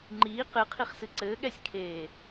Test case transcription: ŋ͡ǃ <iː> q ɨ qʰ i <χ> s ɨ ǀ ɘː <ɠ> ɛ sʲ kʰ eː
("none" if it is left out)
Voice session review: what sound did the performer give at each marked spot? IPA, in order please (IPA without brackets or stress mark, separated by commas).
iː, χ, ɠ